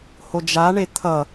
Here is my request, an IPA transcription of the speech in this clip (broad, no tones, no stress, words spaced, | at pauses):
hod͡ʒaɳe t̪ʰʌ